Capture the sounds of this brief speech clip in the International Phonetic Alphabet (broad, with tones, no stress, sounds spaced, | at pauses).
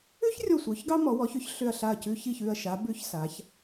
ʉ˥ ç rʲ ɔ˧˩ sʷ œ˩˧ ç ɡ ɑ˥ m ɔ˩˧ w ɔ˩˧ ç ʏ˧ ç ɬ ʏ˧˩ ɐ̯ ɬ a˧˩ ɐ̯ c ʉ˧ ç i˧˩ ç ʉ˧˩ ɐ̯ ʃ a˩˧ b ʉ˧ ç s a˩˧ ç